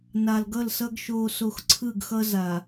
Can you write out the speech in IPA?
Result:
na˨lɡʌ˦˨lsʌ˦ɡ ʃoː˨so˨x ǀʰɯ˦˨ɡxʌ˦ za˨

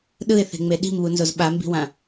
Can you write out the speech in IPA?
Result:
ɗɯɪ̯θe̤ŋ͡me ɗi̤mβunzoz ɓambi̤wã

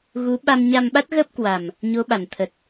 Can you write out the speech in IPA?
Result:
ɣu˨˦ɓa˧m ɲa˧mɓa˦˥t̚ɣə˦˥p̚ kwa˨˩m | ɲo˨˦ɓa˨˩n t̪ʰə˨˩t̚

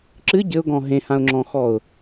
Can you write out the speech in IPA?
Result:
ǁɨ ɟɘʊ̯ɡɔ̃ ɦẽhãʊ̯ŋ͡ǁɔ̃xɔʊ̯

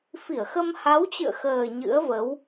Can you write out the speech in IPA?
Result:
fi˧˩ə̯xə˧m ha˨˦wt͡ɕɨ̰˧˨ə̯xəː˨˩ ɲɨ̰˧˥ə̯və˨˦w

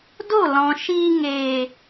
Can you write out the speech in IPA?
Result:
do˦˨lɔ̃˨ʃiː˧ ŋeː˨

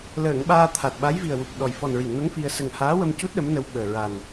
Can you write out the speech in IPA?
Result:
ləː˨˩˨ŋ ɓaː˧t̪ʰa˨˩t̚ɓa˧˥j vi˨˩ə̯wu˨˩p̚ɗɔ˨˩j fɔ˨˩nɹi˨˩˨ŋno˧˥ŋ fi˧ə̯ sə˨˩ŋhaː˧˥wə˧mcu˦˥t̚ ɗə˧˥mnə˧wɓəː˨˩ ɹa˨˩n

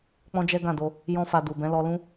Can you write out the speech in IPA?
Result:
k͡pɔ̃˦d͡ʒɛ˦ɡã˦˨do˧ | jɔ̃˦fa˧ du˨bɛ̃˨˦ lɔ˧ lũ˦

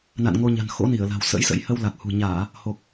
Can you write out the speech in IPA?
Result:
na̰˧˨nŋo˧ ɲa̤˨˩n xo̰˧˥ni˧˩ə̯ la̤˨˩wsə̰˧˥jsə̰˧˥j hə˧wla˨˩k̚hṳ˨˩ɲaː˧˩˨ | ho˨˩k̚

